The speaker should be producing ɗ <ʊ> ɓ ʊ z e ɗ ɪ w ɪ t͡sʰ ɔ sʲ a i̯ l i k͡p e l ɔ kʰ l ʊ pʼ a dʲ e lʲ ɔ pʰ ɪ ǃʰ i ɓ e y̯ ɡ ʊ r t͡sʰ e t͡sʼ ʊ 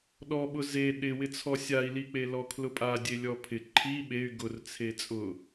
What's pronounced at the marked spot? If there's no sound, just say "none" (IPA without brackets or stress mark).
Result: ɔ